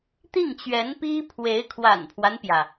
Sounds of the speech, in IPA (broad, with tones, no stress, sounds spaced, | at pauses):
t̪ i˥˩ ŋ t͡ɕ ɥ ɛ˧˥ n p i˥ pʰ w e˧˥ ɪ̯ kʰ w a̰˨˩ n pʰ w a˦ n p j ä˩